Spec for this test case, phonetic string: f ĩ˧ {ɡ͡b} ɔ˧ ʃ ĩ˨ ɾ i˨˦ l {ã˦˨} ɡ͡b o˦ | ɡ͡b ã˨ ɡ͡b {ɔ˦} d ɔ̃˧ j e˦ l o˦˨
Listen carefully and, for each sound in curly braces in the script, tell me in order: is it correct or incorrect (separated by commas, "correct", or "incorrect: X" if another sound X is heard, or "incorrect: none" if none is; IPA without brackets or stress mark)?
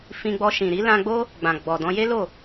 correct, incorrect: ã˧, incorrect: ɔ˨